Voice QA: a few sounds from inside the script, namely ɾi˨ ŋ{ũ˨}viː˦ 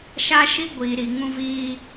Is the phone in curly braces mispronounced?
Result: yes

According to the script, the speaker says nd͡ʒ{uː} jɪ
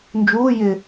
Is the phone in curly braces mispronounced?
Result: no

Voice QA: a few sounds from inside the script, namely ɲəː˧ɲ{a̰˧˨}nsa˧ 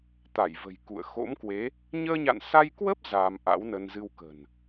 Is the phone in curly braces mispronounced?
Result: no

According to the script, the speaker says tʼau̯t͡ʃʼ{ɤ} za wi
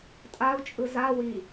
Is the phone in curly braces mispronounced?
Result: yes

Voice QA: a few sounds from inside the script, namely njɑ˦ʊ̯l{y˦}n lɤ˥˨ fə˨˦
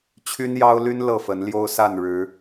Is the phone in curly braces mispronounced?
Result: no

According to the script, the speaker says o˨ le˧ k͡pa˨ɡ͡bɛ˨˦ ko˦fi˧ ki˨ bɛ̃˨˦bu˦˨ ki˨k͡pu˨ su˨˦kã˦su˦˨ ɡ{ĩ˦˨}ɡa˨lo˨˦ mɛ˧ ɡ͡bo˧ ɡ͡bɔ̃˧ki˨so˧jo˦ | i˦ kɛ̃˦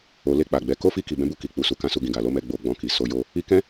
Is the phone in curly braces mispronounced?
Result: yes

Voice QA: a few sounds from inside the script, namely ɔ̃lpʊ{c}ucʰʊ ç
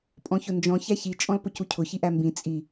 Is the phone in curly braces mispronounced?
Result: no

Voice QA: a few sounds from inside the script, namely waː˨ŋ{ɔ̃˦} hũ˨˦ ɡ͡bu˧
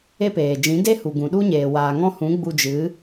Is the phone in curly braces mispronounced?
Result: no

